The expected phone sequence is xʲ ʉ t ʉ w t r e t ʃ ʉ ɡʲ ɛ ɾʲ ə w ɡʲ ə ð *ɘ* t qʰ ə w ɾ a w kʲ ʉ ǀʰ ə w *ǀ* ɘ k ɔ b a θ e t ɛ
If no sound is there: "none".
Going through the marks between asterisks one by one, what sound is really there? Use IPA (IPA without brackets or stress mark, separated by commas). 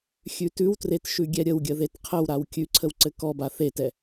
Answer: e, ǀ